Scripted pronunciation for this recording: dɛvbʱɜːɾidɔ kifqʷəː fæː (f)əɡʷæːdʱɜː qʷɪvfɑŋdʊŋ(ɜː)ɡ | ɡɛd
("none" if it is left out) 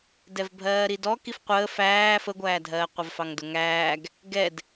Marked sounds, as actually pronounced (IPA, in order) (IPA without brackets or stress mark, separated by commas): f, æː